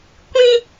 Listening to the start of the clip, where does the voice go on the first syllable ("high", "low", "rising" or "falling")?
high